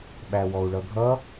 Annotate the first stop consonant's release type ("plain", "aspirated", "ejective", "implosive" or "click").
implosive